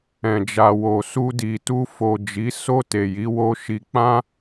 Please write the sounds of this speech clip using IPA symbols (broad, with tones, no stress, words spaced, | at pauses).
ɛ̃˨d͡ʒa˨wo˨ su˧ di˨tu˧ fo˨ d͡ʒi˨˦ so˧ te˨ji˨˦wo˦ʃi˧ k͡pã˦